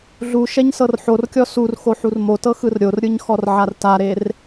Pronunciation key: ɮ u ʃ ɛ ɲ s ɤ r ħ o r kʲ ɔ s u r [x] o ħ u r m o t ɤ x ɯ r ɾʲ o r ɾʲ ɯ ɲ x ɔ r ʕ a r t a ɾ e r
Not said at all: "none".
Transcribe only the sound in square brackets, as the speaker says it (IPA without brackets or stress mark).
x